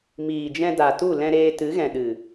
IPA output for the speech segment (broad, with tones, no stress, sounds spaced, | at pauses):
m iː˨ d͡ʒ ɛ̃˧ d a˨ t u˦˨ l ɛ̃˧ ɾ eː˧ t ɨ˨˦ ɣ ɛ̃˨ ɗ ɨ˨